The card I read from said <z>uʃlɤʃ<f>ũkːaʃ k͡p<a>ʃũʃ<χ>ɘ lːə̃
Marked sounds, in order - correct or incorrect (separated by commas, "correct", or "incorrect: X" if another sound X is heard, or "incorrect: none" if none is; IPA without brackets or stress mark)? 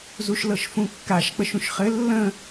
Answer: correct, correct, incorrect: ə, correct